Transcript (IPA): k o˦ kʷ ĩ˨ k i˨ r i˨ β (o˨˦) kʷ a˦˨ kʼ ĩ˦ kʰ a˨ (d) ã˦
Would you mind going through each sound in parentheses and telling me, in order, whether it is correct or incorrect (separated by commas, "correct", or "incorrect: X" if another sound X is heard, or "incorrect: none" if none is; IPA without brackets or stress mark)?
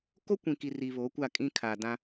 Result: correct, correct